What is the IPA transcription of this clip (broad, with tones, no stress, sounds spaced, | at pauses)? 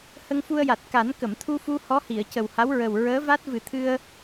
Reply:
h ə˧ ŋ f u˧ ə̯ j a˨˩ t̚ k a˨˩˦ n k ə˨˩˨ m t̪ʰ u˧ f u˧ h ɔ˧˥ h i˨˩˨ ə̯ c ə˨˩ w h a˧˥ w ɹ ə˨˩ w ɹ əː˧˥ v a˦˥ t̚ v ɨ˨˩˦ t̪ʰ ɨ˧ ə̯